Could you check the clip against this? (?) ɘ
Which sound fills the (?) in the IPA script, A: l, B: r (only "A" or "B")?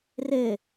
B